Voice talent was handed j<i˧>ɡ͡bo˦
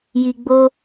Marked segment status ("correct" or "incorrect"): correct